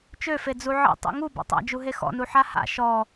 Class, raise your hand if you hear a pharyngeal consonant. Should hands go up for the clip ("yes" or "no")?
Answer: yes